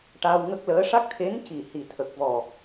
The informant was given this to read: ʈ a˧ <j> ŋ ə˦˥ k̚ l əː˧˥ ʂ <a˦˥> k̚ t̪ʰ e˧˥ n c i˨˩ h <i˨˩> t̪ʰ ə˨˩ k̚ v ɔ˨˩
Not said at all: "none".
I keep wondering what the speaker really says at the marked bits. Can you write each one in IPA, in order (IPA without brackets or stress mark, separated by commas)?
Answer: w, a˦˥, i˨˩